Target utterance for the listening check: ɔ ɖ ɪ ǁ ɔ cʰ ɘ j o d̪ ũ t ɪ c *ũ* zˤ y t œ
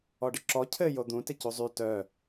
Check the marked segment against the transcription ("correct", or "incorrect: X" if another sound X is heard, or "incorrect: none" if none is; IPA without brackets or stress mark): incorrect: u